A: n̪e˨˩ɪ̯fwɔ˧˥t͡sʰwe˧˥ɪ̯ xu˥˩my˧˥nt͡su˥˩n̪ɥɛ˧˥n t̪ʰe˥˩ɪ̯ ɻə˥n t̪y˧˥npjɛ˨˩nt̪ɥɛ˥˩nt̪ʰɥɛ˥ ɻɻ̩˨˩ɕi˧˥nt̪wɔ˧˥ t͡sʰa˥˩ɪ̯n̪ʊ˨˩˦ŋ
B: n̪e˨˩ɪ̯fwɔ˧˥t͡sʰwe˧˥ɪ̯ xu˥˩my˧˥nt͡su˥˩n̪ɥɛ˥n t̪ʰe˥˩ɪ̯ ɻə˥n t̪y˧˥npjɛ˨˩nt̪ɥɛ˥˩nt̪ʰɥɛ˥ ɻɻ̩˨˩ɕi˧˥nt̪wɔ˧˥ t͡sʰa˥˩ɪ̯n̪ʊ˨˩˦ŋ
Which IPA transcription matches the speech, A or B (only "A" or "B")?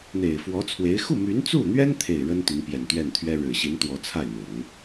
B